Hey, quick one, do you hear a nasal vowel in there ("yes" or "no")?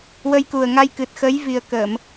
no